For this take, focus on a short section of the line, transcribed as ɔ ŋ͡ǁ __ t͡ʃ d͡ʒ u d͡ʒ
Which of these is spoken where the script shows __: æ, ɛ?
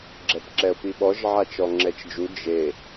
ɛ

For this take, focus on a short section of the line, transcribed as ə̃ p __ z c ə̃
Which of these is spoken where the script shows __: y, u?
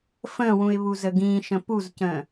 u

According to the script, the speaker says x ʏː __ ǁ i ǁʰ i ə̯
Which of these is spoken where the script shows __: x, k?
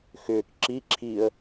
k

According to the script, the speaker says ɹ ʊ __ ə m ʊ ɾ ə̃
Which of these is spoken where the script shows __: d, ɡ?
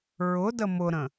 d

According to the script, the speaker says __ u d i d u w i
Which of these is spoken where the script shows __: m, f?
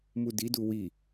m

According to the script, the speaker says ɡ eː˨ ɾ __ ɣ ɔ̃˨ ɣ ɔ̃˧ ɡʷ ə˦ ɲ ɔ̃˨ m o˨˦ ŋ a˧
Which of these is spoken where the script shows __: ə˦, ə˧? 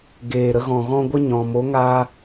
ə˧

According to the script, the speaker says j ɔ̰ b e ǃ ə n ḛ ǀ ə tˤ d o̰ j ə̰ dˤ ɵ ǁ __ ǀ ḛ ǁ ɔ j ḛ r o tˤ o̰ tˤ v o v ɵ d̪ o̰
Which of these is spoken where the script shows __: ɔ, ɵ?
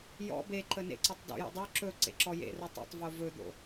ɵ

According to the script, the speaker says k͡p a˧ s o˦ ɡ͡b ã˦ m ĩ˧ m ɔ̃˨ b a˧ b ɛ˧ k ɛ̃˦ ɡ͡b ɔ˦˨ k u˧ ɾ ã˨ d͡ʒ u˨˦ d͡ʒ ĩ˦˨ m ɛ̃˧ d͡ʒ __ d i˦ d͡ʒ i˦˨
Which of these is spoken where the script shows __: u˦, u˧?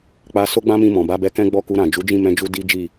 u˧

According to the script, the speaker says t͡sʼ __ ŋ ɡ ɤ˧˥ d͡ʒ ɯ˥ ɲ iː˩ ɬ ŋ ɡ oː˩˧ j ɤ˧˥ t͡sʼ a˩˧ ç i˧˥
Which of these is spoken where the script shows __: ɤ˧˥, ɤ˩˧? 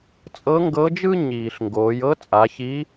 ɤ˧˥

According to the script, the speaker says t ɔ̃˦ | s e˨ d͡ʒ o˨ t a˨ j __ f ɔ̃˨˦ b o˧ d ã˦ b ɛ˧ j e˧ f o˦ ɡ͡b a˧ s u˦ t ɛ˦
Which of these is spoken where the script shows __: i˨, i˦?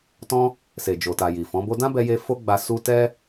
i˨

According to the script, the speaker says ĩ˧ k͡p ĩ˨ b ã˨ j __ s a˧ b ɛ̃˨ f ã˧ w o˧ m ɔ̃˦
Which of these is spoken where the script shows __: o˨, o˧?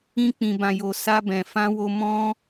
o˨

